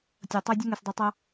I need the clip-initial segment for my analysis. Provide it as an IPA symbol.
tʲ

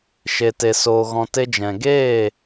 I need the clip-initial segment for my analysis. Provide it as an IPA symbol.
ʃ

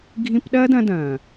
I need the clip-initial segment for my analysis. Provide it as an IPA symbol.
ɡʱ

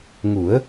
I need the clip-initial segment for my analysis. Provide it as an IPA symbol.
ŋ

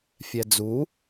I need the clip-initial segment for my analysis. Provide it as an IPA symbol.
fʲ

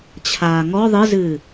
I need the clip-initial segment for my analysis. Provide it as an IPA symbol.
t͡ɕʰ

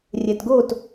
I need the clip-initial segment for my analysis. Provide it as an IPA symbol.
rʲ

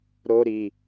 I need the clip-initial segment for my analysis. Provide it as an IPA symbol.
ɾ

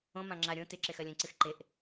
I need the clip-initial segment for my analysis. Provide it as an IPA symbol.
õ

